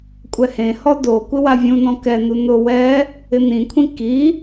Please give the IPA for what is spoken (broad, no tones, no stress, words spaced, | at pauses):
kʷʼɛhẽhɔ do kʷɪwavʲũnɔ̃ kɛnu nʊ wɛ | ɪnĩkʷʰĩ ki